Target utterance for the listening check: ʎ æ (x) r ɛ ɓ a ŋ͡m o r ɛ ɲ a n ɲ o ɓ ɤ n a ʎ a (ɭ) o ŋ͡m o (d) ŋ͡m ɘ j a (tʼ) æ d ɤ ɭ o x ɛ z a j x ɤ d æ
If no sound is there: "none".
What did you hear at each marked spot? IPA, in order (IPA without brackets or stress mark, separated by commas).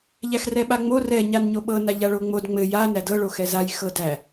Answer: x, ɭ, d, n